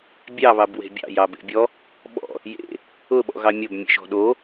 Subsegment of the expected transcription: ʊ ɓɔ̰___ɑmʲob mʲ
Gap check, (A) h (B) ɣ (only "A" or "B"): B